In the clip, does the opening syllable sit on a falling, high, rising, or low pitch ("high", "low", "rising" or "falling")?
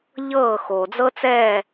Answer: falling